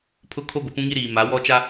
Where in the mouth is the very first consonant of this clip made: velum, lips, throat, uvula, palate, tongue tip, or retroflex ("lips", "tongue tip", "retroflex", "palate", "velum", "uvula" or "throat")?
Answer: lips